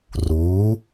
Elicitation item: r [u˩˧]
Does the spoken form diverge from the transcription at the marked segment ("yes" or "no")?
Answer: yes